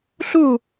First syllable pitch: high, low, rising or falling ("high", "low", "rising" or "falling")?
falling